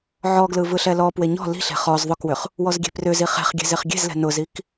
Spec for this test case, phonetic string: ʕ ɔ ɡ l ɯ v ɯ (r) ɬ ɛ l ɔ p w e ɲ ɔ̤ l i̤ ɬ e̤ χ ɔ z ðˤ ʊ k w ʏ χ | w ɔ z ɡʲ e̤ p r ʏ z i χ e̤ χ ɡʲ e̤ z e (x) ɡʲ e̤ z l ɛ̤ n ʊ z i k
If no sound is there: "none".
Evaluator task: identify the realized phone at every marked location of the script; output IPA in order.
none, χ

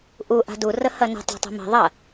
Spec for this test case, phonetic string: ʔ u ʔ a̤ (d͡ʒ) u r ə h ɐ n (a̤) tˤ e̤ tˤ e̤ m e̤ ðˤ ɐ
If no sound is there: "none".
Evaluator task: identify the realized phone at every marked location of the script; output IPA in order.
d, ə̤

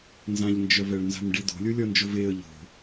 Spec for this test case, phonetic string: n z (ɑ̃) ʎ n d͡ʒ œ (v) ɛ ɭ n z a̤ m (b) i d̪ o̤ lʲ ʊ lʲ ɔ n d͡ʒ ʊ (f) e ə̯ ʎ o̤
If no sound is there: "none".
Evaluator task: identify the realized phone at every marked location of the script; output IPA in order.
ã, v, ɖ, v

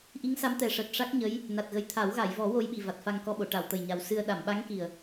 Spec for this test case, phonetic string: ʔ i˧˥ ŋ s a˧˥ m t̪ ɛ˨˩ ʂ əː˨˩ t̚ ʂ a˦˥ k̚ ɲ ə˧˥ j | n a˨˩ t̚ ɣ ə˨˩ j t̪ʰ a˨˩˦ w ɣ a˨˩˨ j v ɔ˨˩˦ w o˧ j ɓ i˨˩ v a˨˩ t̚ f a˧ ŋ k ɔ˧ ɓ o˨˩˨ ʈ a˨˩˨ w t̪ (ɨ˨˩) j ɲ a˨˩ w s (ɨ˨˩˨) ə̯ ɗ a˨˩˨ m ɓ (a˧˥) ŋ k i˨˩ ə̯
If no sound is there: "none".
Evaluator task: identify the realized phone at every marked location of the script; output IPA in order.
ə˨˩, ɨ˧, a˧˥

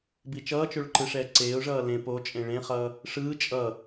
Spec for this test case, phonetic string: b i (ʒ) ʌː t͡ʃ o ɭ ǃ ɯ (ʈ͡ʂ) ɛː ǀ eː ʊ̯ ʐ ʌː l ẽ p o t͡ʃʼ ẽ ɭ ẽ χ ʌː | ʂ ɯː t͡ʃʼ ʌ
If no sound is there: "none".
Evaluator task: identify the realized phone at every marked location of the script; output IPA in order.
t͡ʃ, ʂ

